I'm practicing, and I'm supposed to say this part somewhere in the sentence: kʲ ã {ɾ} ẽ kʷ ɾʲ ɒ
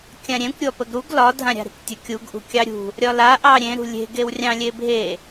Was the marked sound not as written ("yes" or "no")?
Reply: yes